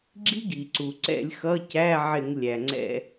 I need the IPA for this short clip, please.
ɡ͡ǁ i˦˥ ɡ i˩ ǀ u˩ ǀ ɛ̰˧˩˧ lʲ x ʌ˧˥˧ c æ˧˥˧ ʕ ɪ˧˩˧ ŋ lʲ æ˩ ŋ͡ǀ ɛ̰˧˩˧

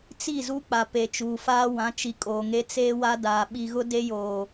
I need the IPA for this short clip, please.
t͡s i˦˨ z u˦ k͡p a˨ p e˨ t͡ʃ uː˨ f aː˦ w ã˨˦ t͡ʃ i˨ kʼ oː˨ ŋ e˦ t͡s eː˦ w a˦ d aː˨ ɓ i˨ ɣ ʊ˦ d e˦ j oː˨

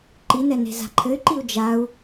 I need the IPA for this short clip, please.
ǃ i n ɛ n e̤ z a̤ ǃʰ ɘ y̯ ǃ i u̯ d͡ʒ a u̯

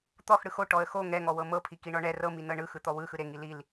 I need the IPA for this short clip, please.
t̪ ɔ x ɽ ɯ x o ʈ ɔ ə̯ x o ŋ ɛ ŋ ɔ w ɤ m ɤ pʰ i k i ɳ ɔ ɳ ɛ r ɤ m i n ɤ ɳ ɯ x ɯ t̪ ɔ w ɯ x ɯ ɾ e ŋ i l i l

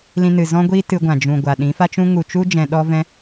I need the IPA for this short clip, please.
l ĩ˧ n ɨ˨ z ɔ̃˦ ɡʷ i˦ t ɨ˧ ɡʷ ã˨ d͡ʒ ũ˨ ɡʷ a˨ ɗ ĩ˨˦ f a˦ t͡ʃ ũ˦ ŋ u˨ t͡ʃ u˦ d͡ʒ ɛ̃˧ ɗ ɔ˦ v ɛ̃˦

